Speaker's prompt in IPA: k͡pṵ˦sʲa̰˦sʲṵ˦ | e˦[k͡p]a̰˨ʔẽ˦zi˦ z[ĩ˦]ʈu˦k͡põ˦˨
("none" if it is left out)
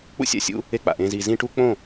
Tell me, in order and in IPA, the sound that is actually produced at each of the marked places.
k͡p, ĩ˦

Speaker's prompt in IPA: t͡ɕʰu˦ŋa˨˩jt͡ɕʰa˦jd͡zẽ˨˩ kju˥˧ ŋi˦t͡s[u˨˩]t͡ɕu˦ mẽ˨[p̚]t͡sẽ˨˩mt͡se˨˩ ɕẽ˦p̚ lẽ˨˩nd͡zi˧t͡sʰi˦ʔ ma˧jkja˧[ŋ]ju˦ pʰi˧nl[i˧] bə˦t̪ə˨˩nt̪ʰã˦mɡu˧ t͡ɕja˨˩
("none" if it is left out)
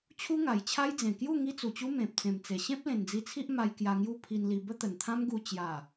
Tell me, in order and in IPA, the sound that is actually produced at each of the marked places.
u˨˩, p̚, ŋ, i˧

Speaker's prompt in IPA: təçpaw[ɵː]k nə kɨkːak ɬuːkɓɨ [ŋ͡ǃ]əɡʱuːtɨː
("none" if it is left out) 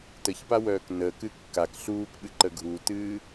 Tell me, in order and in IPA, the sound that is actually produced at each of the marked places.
œː, ǃ

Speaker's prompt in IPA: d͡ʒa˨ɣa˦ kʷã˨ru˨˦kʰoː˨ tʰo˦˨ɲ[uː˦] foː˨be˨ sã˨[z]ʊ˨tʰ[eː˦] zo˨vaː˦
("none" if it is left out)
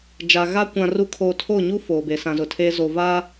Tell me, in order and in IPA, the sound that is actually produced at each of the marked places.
u˦, z, eː˦

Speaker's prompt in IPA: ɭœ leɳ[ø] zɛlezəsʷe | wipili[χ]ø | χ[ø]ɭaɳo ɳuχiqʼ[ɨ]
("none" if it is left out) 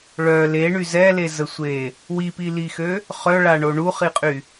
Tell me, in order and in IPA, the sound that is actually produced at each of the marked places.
y, x, œ, y

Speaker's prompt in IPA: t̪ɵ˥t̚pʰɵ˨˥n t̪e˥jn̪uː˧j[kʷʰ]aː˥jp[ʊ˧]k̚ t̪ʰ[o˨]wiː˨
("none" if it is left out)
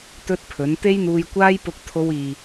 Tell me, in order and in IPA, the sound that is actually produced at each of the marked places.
kʷ, ʊ˧, o˧

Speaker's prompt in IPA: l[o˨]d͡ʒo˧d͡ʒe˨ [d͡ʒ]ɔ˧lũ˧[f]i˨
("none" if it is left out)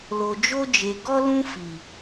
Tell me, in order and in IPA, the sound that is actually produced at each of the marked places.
o˨, ɡ, f

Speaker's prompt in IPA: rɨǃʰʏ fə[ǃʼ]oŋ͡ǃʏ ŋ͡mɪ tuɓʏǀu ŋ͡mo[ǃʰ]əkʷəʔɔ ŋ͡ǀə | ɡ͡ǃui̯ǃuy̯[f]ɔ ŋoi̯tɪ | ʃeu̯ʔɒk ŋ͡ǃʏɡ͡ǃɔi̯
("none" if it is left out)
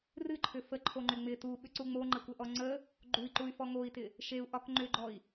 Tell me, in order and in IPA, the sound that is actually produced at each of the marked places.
ǃʰ, ŋ͡ǃ, f

